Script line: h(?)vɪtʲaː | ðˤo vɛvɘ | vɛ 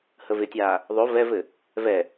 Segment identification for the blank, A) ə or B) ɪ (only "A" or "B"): A